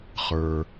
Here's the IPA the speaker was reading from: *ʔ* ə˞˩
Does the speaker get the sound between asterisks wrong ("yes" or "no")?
yes